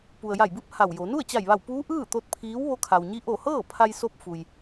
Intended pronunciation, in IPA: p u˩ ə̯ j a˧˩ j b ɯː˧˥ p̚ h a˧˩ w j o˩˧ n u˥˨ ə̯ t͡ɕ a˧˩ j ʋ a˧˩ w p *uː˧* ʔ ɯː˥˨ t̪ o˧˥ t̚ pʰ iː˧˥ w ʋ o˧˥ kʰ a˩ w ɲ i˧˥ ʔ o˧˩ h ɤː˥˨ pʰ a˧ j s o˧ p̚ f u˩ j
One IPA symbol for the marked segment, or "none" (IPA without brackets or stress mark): uː˧˥